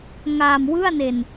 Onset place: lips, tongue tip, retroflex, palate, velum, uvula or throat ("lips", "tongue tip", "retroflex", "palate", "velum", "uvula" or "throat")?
velum